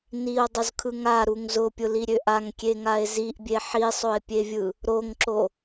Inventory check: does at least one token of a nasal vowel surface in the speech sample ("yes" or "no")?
no